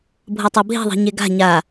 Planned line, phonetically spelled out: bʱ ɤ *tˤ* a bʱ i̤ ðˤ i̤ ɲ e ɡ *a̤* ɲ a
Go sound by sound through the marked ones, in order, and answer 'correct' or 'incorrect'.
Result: correct, correct

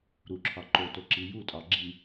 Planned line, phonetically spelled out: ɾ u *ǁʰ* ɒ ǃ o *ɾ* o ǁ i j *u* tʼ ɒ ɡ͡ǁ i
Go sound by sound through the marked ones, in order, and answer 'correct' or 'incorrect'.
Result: correct, incorrect, correct

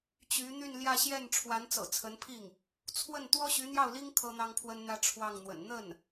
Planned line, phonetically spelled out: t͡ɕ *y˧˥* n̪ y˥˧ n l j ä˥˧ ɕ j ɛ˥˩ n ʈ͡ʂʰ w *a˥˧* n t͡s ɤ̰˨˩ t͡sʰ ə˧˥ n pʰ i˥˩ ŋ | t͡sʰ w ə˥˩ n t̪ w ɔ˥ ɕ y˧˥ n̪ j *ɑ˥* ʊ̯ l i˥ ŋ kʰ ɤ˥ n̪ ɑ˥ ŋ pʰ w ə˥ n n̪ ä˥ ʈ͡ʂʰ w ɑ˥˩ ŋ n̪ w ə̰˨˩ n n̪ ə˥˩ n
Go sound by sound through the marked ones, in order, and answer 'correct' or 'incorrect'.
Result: correct, incorrect, incorrect

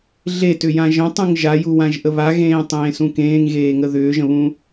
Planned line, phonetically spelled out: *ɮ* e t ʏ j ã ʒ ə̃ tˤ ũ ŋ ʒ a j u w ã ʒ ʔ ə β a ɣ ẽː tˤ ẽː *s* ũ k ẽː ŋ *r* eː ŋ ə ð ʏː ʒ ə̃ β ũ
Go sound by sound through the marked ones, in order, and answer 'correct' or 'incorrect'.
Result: correct, correct, incorrect

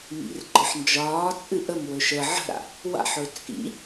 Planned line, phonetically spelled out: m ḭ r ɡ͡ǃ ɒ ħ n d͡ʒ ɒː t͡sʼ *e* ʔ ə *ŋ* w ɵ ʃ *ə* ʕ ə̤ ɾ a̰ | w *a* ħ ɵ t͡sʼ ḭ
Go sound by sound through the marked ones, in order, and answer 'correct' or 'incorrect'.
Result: incorrect, incorrect, correct, incorrect

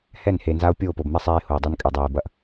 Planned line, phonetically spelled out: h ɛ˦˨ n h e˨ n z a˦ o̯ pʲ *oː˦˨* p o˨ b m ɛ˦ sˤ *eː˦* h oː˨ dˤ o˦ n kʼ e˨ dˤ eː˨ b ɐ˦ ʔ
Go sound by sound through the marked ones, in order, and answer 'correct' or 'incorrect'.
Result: correct, correct

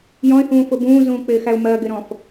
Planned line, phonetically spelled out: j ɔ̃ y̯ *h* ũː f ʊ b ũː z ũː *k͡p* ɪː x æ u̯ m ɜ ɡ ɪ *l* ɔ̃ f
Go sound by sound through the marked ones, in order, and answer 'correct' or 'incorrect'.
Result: correct, correct, incorrect

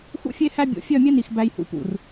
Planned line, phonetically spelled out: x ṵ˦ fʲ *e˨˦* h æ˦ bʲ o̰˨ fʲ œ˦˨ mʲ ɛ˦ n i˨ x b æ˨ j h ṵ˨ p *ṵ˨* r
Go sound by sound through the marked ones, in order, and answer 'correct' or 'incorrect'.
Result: incorrect, correct

